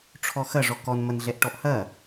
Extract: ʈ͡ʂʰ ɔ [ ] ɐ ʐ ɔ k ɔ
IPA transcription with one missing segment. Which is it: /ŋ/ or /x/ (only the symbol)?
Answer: x